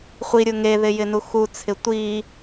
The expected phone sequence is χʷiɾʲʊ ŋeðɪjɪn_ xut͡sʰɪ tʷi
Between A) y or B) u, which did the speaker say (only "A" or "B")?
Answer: B